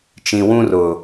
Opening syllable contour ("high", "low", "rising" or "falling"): low